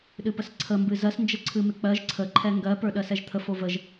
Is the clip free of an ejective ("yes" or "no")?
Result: yes